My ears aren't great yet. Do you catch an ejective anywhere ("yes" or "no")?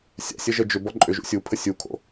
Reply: yes